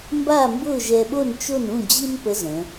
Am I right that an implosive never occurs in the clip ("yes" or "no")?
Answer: no